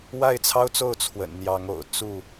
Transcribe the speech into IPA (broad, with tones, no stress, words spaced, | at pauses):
wa˥˨ɪ̯t͡sʰɑ˦ʊ̯t͡so˥˨ʊ̯ t͡sʰwə̰˨˩nn̪jɑ˨˦ŋ o̰˨˩ʊ̯ t͡su˥˨